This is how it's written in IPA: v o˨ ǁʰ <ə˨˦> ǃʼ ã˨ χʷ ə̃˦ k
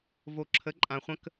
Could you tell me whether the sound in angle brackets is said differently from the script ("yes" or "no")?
no